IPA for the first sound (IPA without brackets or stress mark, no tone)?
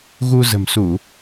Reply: ɣ